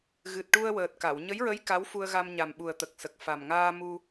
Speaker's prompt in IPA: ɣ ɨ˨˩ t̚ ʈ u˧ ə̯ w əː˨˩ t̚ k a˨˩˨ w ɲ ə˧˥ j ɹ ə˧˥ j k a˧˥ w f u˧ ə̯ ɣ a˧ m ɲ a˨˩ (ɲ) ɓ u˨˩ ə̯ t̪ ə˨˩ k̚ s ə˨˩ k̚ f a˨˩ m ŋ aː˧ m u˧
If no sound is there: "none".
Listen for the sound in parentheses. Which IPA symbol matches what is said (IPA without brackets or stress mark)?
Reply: m